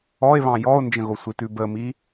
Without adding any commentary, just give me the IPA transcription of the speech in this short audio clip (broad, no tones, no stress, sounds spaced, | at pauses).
ɔ e̯ β ɑ̃ j ɔ o̯ n d͡ʒ ə̃ ɣ o sʷ i t ʉ b ə m i